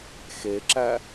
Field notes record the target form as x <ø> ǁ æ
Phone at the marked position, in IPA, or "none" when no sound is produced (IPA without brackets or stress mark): e